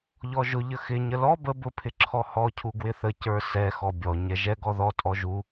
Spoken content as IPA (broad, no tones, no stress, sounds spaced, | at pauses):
ʎ ɔ ʒ ʊ ʎ ə x ɪ ɲ ə l ɔ b ə b ʊ pʰ ɪ ǁʰ ɔ h ɔ cʰ u ɡ w ɪ θ ə c ə˞ s ɛ x ɔ bʲ ɔ ɲ ɛ ʒ ɛ ɡ ɔ ð ɔ tʼ ɔ ʒ u